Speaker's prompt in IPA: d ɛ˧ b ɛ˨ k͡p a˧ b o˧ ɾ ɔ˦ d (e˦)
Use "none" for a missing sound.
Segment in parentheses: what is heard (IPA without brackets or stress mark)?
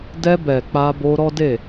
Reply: e˦˨